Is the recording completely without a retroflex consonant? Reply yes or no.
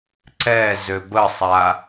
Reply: yes